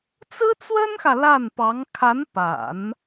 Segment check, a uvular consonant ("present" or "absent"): absent